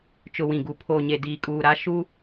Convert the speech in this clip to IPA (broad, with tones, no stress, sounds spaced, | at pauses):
t͡ʃ ʊ˨ w ĩ˨ ɡ u˨ pʰ oː˨ ɲ e˨ d iː˨ kʼ uː˨ ɾ a˦ ʃ u˦